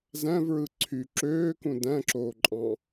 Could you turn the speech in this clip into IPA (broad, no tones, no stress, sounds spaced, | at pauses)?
z æ̃ v ɹ ɯ ǀʰ y ǁ øː k ũ d æ̃ ǁ oː ǃʼ ɑ̃